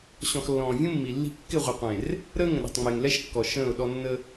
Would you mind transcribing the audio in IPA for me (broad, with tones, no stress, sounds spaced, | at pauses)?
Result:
ɕ ɔ̃˨ x lː ɔ̃ː˨ vʲ ũ˦ mː i˨ lː i̤˦ kː ɪ˦˨ ʁʷ ɪ˨ qʷ ẽ˨ r | ɾ əː˦ ŋ ə̃˨ ɗ ɛ̤˨ tˤ ŋ͡m ɪː˨ ŋ l ɛ˦ ʃ kː ɔ˨ ʃ ə̃ː˦˨ ʊ̯ ɗ ɔ˦ nː ə˦